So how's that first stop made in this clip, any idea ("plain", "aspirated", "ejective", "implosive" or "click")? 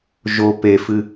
plain